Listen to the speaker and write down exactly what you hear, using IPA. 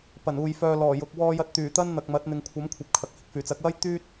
p ɐ˨˩ n uː˨ j f œː˧ l ɔː˨˩ j ʊ˨ k̚ w ɔː˧ j ɐ˧ t̚ t̪ yː˨˩ t̪ ɐ˥ n n̪ ɐ˨ k̚ m ɐ˨˥ t̚ n̪ ɪ˨ ŋ kʷʰ ɐ˨˥ m kʷʰ ɐ˨ p̚ kʰ ɐ˨ k̚ h ɪ˨ k̚ f yː˨˩ t͡s ɐ˨˥ k̚ w ɐ˥ j t̪ yː˥ t̚

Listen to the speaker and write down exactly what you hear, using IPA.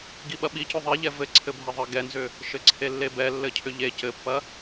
ɡ i ɓ ɐ ɓ i c ʏ ðˤ i ʎ ɛ v ɘ ǀʰ ɘ bʱ ɛ ðˤ ɘ ɡ ɛ n z ʏ | ʃ ɘ ǀʰ e lː e b ɛ lː ɘ cʰ ʏ ʎ e c ɘ pː ɐ

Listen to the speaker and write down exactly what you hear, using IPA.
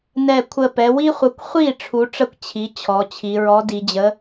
n ɛ˧˩ kʷʰ ə˧˩ p ɛ˩˧ w i˥ χʷ ə˨˥ kʷ χʷ i˥˩ ʈ͡ʂʰ u˨˥ ʈ͡ʂ ə˥˩ kʷ t͡ɕʰ i˨˥ t͡ɕʰ ɔ˩˧ t͡ɕʰ i˩˧ ɹ ɔ˨˥ d i˩˧ d͡ʑ ə˨˥

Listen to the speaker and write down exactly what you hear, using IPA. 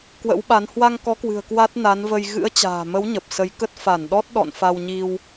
k w ə̰˧˥ w ɓ a˨˦ n h w a˧ ŋ k ɔ˨˦ k w ɨ̤˨˩ ə̯ k w a˦˥ t̚ n a˨˦ n v ə˧ j ɣ ɨ̰˧˥ ə̯ t͡ɕ a̤ː˨˩ m ə˨˦ w ɲ ə˨˩ p̚ s ə˨˦ j k ə˦˥ t̚ f a˧˩ n ɗ ɔ˦˥ t̚ ɗ ɔ̰˧˨ n f a˧ w ɲ i˧ w

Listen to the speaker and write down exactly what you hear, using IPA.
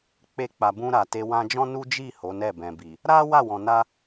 k͡p e˧ k͡p a˨ b ũ˧ ɾ a˨ t e˧ w ã˧ d͡ʒ ɔ̃˦ n u˦ d͡ʒ i˦˨ h o˨˦ n ɛ˦˨ b ɛ̃˨ b i˨ | ɾ a˦ w a˦˨ w ɔ̃˨ n a˧

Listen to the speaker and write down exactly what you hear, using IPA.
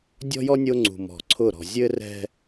dʲ ɔ̤˦ j ɔ˦ nʲ o˦ ŋ͡ǀ ṳ˨ m ɔ̤˨ ǀʰ ʊ˦˨ ɾ ɔ̤˨ zʲ ɘ˦ r ɛ̤˦

